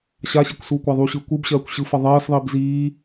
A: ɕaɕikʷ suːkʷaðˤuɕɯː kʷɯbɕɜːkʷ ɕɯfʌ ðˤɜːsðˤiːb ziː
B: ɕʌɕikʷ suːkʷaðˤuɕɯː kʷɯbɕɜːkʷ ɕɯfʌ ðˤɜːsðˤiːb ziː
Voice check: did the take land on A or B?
A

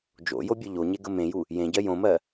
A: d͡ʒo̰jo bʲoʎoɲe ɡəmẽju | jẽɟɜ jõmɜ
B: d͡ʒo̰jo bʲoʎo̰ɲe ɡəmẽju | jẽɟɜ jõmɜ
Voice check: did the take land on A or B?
A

